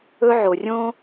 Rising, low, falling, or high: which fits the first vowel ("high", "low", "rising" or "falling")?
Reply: high